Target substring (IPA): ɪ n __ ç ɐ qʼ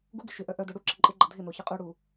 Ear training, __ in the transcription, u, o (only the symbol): o